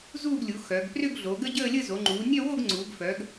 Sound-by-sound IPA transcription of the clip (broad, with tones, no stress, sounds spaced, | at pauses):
z uː˥˧ ɡ lʲ u˩˧ x œ˩˧ ɡ p r ʏ˥˧ ɡ ɮ o˩˧ ɡ ə˥˧ ɟ əː˥˧ lʲ ə˥˧ z o˩˧ ŋ͡ǃ uː˩˧ nʲ œ˥˧ w o˥˧ ɡ ŋ͡ǀ uː˩˧ ɡ f œ˩˧ ɡ